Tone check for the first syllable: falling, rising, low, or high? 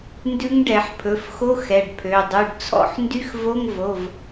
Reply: rising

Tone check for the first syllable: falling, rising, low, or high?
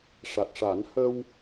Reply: low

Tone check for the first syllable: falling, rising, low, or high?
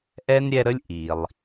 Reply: high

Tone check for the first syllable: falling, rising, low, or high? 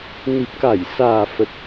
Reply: low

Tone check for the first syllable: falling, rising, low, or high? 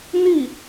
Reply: falling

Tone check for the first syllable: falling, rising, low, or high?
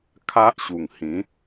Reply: high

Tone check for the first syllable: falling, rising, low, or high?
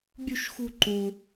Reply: high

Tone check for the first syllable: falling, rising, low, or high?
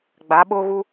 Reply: rising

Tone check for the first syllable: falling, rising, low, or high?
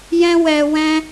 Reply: high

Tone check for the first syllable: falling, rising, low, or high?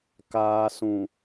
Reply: low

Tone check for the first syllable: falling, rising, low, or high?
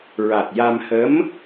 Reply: low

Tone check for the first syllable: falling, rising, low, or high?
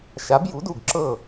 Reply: rising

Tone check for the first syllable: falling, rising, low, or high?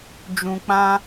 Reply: low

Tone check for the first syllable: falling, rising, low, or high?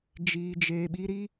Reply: low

